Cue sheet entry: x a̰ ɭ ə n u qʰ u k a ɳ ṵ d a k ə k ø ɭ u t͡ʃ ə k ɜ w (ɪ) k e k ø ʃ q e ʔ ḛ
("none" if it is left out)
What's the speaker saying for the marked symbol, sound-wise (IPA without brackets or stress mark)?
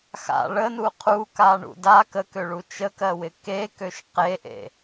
ɪ